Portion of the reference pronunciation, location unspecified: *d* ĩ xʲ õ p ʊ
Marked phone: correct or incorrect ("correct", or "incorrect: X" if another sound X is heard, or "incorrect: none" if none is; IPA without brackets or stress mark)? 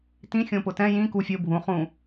incorrect: t